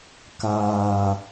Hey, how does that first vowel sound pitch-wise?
low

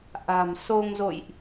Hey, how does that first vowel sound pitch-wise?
low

